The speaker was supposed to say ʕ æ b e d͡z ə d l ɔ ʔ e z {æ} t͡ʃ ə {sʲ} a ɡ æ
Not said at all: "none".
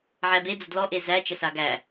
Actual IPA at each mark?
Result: æ, s

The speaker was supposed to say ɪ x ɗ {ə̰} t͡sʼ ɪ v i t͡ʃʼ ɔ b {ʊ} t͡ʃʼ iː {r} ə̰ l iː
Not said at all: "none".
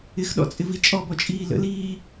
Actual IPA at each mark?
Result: ɔ̰, ɔ, l

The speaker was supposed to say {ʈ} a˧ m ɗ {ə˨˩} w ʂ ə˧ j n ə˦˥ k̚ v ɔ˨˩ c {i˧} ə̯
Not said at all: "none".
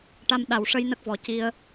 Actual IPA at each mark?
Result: ʈ, a˨˩, i˧

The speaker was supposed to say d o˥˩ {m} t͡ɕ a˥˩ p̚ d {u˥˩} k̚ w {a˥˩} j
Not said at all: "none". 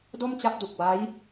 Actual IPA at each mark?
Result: m, u˨˩, a˦˥

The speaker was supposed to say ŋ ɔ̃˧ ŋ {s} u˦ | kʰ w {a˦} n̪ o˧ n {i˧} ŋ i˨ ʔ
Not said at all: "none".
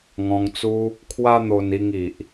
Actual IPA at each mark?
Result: t͡s, a˦, i˧

